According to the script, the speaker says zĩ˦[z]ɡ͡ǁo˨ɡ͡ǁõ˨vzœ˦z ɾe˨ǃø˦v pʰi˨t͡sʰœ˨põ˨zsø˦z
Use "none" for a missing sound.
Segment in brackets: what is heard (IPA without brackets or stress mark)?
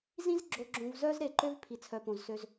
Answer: z